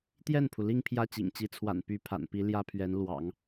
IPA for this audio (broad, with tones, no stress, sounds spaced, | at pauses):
t̪ j ɛ˥˩ n pʰ u˩ l i˥˧ ŋ pʰ j ä˥˩ t͡ɕ ḭ˨˩ ŋ t͡ɕ i˧˥ t͡sʰ w a̰˨˩ n p y˧˥ pʰ a̰˨˩ n p i˧˥ l j ä˥ pʰ ɥ ɛ˧˥ n l w ɑ̰˨˩˦ ŋ